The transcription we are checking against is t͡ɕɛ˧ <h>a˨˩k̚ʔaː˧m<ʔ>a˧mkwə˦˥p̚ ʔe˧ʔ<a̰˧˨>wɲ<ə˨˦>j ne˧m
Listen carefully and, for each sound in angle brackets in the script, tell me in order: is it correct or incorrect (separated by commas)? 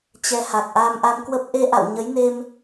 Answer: correct, correct, correct, correct